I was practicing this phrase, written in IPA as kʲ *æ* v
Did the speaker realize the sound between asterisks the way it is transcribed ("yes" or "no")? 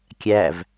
yes